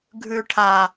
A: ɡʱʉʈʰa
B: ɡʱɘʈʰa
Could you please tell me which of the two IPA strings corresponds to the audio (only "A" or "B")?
A